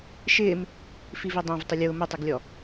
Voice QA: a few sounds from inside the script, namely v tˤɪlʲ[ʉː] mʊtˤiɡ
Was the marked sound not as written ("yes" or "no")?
yes